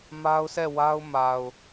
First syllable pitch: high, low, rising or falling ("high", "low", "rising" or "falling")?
high